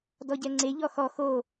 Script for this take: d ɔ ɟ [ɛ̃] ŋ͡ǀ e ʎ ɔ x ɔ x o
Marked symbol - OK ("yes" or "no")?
no